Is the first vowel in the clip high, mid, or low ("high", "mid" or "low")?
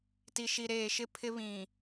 high